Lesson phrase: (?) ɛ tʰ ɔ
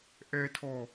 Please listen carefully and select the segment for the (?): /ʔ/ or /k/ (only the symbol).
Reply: ʔ